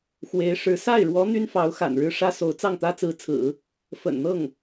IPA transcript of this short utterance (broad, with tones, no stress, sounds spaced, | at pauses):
x w e˧˥ ɪ̯ ʂ ɻ̩˧˥ s a˥˩ ɪ̯ ɻ w ɔ˧˥ n̪ y˥ n f ɑ˧˥ ʊ̯ x a̰˨˩ n ɻ ɻ̩˥ ʂ ä˥ s o˧˥ ʊ̯ t͡s ɑ˥˩ ŋ t̪ ä˥ t͡s ɹ̩˧˥ t͡sʰ ɹ̩˨˩˦ | f ə̰˨˩ n n̪ ɤ˥˩ ŋ